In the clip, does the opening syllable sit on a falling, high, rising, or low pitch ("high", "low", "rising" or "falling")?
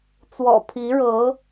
low